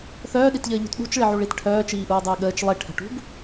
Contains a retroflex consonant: yes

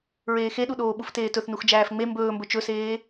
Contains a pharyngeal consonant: no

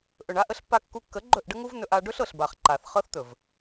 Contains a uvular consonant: yes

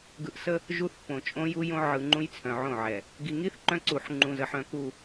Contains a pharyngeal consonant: yes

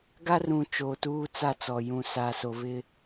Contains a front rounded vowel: no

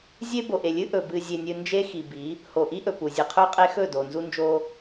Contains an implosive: no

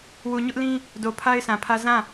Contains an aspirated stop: yes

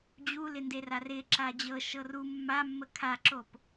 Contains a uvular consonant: no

